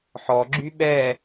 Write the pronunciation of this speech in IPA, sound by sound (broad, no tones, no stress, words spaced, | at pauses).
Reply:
ħɔɡ͡ǁy ɓɛ